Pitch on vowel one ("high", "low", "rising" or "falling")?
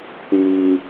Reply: high